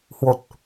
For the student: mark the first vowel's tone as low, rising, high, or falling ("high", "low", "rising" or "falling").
low